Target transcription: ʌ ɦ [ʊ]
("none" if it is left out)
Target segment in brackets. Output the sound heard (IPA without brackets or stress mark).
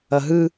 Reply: ɯ